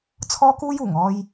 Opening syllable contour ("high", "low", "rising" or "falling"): high